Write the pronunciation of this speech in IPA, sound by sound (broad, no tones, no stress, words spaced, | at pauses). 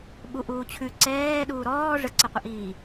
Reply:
ɓuʔuːt͡ɕʰʉ ǀɛː ɗuːɾɔː ʐəǀəqʷəʔiː